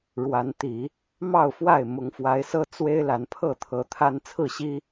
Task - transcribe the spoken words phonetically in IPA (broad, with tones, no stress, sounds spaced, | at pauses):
ɻ w a˨˦ n t̪ i˨˦ | m ɑ˥˨ ʊ̯ f w a˥˨ ɪ̯ m ʊ˨˦ ŋ f w a˨˦ ɪ̯ s ɤ˦ t͡s w e˦ ɪ̯ l a˨˦ n pʰ ɤ˥˨ t̪ʰ ɤ˨˦ t̪ʰ a˦ n t͡sʰ ɹ̩˥˨ ɕ i˦